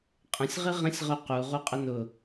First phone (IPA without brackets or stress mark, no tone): qʼ